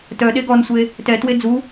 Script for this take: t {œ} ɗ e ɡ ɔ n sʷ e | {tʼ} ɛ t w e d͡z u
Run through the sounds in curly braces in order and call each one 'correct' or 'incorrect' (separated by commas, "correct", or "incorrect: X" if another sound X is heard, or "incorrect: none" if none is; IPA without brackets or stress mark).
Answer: correct, incorrect: t